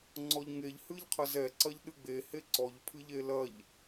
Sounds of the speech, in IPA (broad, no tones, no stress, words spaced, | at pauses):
ŋ͡ǀɔʎŋeʎ hɨʎqʰɐzɛǀɐʎ ɗɨɡ͡behe ǀɔʎpʰɨʎe lɐʎ